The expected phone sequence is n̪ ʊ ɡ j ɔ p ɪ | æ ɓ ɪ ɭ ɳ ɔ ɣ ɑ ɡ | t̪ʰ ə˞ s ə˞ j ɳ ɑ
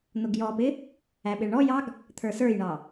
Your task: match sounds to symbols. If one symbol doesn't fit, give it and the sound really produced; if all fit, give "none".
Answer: ɣ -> j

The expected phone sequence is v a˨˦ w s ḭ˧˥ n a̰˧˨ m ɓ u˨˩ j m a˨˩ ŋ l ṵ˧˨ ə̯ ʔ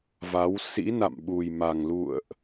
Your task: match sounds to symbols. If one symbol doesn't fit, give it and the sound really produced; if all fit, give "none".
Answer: none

